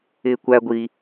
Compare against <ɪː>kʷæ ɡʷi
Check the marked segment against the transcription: correct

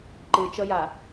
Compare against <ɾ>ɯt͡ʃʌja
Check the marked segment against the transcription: incorrect: ǃ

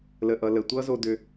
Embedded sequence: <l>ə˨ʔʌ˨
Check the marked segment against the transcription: correct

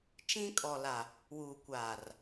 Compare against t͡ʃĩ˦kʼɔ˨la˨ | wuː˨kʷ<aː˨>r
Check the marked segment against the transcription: correct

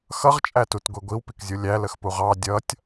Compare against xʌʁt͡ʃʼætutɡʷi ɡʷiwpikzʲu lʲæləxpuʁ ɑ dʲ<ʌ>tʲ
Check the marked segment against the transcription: correct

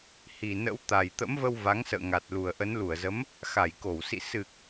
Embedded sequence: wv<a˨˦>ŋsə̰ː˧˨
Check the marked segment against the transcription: correct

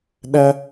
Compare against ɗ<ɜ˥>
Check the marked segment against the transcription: correct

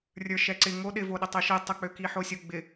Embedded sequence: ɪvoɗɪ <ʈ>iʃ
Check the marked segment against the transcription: incorrect: tˤ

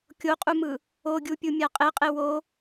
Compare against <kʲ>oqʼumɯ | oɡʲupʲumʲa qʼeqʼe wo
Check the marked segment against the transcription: correct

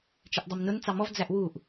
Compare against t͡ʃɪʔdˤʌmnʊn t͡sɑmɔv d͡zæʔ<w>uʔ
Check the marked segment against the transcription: correct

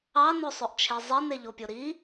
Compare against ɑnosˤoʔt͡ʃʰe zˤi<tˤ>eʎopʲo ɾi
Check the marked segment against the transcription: incorrect: n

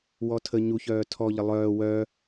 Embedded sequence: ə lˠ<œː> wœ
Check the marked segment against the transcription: correct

